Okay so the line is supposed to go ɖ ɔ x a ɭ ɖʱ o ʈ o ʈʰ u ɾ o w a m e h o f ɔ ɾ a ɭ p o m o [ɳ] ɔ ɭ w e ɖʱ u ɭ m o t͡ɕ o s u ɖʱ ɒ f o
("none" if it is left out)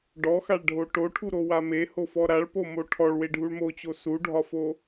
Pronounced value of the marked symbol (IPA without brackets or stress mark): ʈʰ